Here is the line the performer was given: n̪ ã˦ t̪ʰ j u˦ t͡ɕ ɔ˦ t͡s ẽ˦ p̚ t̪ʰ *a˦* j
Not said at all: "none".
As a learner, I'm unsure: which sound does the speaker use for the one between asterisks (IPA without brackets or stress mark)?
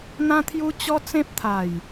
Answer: a˨˩